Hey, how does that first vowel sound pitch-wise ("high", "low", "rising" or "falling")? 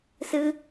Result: high